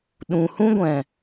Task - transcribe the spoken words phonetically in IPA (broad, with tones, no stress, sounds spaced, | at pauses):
ɗ ũ˨ h ũ˦ ɡʷ ɛ̃˨